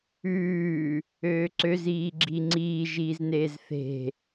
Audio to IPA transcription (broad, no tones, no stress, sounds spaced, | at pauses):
ʉː | øː ǀ ø z iː ɡ͡ǁ i ŋ͡ǀ iː ʒ iː z n eː z θ e̤